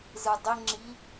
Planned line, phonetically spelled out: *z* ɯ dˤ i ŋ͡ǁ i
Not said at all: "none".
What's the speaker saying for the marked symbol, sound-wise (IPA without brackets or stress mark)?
z